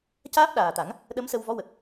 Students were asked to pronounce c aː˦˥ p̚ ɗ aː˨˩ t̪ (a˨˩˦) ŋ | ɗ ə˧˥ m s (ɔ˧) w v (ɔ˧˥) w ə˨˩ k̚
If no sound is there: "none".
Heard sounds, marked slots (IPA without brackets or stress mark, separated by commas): a˨˩˦, ə˧, ɔ˧˥